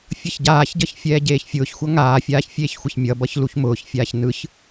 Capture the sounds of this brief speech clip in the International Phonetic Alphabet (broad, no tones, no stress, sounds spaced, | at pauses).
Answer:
fʲ ʌ ç ɟ aː ç ɟ ʌ ç fʲ ɛː ɟ eː ç fʲ ʊː ç xʷ ʌ ŋ aː fʲ aː ç fʲ eː ç xʷ ə ç mʲ ʌ b ʌ ç l u ç m ʊː ç fʲ aː ç n ɯ ç